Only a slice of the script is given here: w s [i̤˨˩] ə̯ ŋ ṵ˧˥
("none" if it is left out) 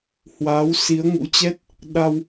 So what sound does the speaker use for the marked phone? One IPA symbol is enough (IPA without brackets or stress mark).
i˨˦